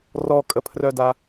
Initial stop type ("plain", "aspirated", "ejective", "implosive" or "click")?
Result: ejective